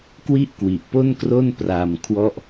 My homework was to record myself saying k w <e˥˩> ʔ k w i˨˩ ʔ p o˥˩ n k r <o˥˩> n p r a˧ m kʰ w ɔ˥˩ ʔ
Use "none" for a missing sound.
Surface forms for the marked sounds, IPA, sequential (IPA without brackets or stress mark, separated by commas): i˥˩, o˥˩